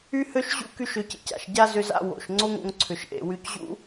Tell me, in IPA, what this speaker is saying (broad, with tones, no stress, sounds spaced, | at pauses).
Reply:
y˥ h ø˥ ʃ ʑ ṵ˥ k y˥ ʃ ø˧ c ḛ˧ c a̰˩ ʃ ɟ a˥ z ʏ˧ z a̰˧ w o̰˩ ʃ ŋ͡ǀ o˥ ŋ o̰˧ ŋ ǀʰ ʏ˩ ʃ ʔ ḛ˩ w y˧ c ʑ ṵ˥